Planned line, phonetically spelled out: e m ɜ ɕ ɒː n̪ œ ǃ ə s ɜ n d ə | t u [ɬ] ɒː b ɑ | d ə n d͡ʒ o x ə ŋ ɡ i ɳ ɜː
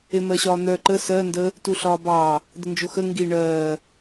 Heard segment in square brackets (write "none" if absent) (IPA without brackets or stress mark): ɬ